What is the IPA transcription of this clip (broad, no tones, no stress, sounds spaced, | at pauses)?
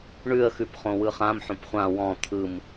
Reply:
ɳ ʉ ə̯ x ʉ p χ õ w ɯ χ ã m ħ õ p χʷ ã w ɔ̃ t̪ʰ ɯ m